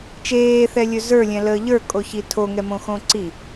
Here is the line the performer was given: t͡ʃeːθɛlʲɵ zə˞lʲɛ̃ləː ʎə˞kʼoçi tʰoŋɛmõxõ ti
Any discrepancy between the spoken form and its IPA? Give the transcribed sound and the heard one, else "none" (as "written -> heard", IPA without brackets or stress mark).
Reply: t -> ǀ